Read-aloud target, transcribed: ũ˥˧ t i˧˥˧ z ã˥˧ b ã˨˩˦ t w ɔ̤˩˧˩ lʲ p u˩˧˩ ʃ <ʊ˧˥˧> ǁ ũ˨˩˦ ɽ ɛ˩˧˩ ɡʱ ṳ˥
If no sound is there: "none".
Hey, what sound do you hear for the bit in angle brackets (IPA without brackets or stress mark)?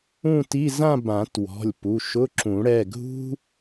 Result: ʊ˧˥˧